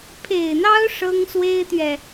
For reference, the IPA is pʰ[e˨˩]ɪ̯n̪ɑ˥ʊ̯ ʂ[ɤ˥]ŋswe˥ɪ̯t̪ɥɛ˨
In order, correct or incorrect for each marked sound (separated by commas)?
correct, correct